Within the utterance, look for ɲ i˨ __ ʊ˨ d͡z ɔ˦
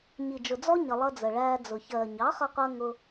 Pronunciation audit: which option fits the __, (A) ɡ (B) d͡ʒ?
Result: B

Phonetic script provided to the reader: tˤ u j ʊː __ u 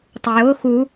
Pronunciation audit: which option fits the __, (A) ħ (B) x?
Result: B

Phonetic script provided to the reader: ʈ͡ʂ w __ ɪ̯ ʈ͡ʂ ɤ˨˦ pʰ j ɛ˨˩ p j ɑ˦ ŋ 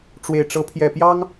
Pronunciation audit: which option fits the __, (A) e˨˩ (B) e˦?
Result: A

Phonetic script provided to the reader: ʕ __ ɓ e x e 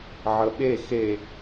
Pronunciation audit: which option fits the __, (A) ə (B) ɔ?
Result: A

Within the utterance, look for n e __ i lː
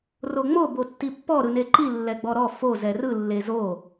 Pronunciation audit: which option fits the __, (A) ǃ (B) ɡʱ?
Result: A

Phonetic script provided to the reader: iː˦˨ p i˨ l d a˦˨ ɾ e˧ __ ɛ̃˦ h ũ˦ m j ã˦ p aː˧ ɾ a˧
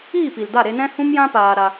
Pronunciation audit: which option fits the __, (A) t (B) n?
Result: B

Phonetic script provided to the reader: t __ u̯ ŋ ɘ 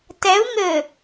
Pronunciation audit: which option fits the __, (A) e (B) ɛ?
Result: B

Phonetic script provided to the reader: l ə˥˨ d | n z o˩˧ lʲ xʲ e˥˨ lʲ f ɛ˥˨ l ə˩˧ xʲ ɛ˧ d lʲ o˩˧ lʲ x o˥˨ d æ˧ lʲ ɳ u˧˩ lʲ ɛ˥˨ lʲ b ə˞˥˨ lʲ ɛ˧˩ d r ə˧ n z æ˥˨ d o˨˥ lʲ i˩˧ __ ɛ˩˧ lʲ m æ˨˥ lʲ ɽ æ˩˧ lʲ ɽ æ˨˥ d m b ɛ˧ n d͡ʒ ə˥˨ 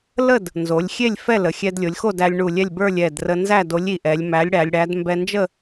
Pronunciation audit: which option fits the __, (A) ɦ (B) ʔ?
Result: B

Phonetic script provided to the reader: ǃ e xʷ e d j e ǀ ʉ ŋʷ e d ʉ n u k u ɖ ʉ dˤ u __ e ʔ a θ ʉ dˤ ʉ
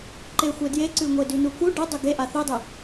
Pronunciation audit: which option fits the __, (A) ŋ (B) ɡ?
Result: B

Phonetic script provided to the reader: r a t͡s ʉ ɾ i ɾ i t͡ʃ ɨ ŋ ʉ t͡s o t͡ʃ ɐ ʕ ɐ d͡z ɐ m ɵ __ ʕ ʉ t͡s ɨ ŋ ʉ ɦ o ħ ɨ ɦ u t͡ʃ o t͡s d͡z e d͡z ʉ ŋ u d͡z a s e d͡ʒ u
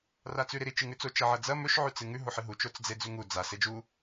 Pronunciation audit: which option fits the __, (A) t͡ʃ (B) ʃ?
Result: B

